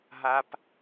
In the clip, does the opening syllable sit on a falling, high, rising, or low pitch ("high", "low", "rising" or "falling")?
high